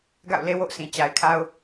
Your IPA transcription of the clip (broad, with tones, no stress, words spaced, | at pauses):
ɡa̰˦˨ʊ̯le˦wo̰˦˨ʊ̯sʰĩ˨ t͡ɕa˨ɪ̯kʰa˦ʊ̯